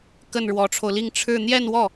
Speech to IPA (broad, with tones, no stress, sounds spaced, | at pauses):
k ə˥˩ n ɻ w ɔ˧˥ ʈ͡ʂʰ o˧ ʊ̯ l i˥˧ ŋ ʈ͡ʂʰ ɻ̩˥˧ n̪ j ɛ˥˧ n w ɔ˥˩